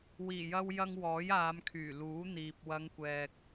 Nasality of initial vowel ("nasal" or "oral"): oral